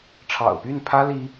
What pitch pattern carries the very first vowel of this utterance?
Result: low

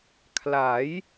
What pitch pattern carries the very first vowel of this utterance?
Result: rising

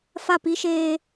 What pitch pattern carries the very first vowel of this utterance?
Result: falling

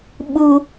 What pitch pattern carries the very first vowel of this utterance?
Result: high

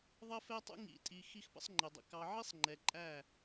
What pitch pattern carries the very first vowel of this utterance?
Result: high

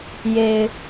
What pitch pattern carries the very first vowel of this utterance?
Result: low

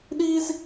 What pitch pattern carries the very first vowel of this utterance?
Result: high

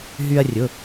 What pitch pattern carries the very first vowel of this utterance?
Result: high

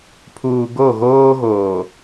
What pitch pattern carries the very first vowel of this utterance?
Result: low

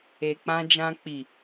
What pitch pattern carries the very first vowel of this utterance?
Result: low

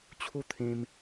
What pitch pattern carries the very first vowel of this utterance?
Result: falling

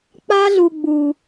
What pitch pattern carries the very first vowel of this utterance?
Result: high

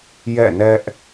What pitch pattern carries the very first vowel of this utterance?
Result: falling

